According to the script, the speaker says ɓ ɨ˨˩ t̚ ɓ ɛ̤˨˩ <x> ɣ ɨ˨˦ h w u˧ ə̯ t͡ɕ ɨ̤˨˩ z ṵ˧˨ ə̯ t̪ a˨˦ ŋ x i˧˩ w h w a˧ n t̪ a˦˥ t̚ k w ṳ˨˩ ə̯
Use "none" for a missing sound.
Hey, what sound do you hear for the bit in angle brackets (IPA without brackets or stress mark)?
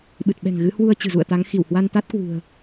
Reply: ŋ